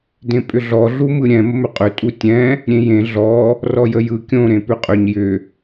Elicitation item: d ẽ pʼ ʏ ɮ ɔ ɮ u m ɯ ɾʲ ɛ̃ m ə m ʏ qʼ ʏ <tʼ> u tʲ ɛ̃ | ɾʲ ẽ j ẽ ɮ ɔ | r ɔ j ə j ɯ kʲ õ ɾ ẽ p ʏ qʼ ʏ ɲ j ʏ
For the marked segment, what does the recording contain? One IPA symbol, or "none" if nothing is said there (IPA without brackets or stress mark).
tʼ